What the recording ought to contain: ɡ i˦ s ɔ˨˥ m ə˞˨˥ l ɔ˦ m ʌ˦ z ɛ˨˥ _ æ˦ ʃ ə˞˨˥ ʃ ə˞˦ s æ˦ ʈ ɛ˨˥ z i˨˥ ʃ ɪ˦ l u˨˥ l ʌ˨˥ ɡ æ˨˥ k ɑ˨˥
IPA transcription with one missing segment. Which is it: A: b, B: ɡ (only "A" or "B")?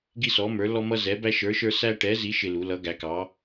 A